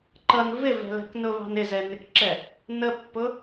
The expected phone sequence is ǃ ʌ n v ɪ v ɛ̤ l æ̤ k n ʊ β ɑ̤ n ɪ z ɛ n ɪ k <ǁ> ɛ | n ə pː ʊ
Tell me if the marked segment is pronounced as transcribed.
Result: yes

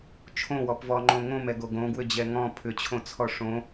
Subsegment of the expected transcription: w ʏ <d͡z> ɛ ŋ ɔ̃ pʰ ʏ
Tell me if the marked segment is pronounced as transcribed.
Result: no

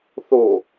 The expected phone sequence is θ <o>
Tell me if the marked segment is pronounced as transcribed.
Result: yes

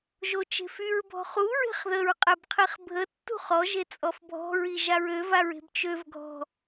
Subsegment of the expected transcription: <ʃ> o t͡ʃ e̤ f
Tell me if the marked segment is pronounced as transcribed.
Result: no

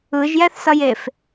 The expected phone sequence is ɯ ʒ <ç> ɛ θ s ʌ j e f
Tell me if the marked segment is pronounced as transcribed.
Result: no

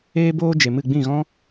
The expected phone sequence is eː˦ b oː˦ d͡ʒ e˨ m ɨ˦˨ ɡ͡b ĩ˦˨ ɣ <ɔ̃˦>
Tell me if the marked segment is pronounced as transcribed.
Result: yes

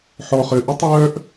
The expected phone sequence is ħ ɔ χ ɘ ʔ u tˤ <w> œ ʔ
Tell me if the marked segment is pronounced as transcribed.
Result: no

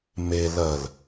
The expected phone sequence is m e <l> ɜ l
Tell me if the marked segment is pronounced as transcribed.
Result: yes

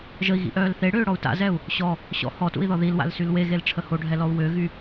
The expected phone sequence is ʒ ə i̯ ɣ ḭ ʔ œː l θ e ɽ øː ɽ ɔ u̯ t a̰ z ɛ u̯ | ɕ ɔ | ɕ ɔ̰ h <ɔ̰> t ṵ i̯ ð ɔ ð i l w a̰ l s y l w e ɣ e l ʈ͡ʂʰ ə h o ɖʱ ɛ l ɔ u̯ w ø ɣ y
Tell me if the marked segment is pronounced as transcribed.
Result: no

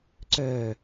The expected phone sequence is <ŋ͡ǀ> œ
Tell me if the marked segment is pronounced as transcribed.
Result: no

